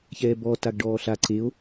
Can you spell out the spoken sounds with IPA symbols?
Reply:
çɛːbɔ taɡɖɔːɬa ǀeo̯

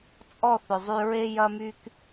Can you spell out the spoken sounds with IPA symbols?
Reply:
t͡sʼɔ˦˨θʏ˨zˤy˧ɹe˦ jɐ˦my˦k

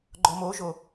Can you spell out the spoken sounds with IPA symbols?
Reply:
ɡ͡ǃɔmoʒo

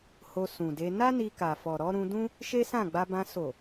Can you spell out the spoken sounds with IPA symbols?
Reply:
ho˧sũ˨de˧ na˦ ni˧ka˨fɔ˨ɾɔ˨˦ ɾũ˧dũ˦ | ʃe˦sã˦˨ɡ͡ba˧bã˧ so˨

